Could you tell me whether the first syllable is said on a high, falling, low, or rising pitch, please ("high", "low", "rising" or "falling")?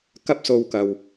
high